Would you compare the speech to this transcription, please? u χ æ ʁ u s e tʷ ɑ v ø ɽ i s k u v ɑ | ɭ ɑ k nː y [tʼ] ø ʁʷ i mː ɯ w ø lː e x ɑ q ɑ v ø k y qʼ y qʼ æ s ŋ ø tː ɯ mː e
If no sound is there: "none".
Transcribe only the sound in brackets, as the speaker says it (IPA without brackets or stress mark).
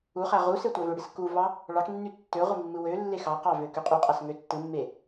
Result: tː